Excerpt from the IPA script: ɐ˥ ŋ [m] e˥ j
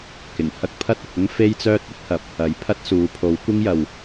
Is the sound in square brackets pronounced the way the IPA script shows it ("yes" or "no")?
no